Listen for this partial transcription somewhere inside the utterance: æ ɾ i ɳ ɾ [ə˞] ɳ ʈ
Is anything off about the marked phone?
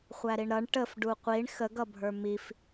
yes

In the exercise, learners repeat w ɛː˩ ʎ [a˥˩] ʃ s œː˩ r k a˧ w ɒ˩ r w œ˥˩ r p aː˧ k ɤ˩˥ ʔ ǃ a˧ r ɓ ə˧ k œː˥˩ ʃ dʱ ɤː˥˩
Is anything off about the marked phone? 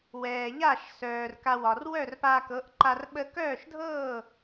no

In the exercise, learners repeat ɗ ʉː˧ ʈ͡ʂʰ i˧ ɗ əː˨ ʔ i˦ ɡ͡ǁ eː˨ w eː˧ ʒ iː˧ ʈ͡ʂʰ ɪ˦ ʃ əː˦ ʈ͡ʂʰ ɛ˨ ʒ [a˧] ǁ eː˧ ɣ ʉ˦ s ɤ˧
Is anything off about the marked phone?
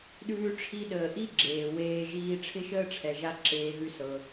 no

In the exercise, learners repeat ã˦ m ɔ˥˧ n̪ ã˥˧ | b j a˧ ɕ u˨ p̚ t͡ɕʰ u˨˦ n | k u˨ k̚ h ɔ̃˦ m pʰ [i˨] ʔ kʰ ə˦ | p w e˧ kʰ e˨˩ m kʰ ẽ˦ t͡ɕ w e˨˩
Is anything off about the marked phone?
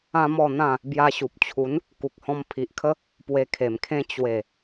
no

